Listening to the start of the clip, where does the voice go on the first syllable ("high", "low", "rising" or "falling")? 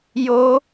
high